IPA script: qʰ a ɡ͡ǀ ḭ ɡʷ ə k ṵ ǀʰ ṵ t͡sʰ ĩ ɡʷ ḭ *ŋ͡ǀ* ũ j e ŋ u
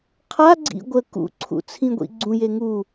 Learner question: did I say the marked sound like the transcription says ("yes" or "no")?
no